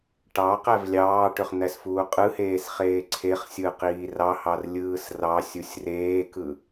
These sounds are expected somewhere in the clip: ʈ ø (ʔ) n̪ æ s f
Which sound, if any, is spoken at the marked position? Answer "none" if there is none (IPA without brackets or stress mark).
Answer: χ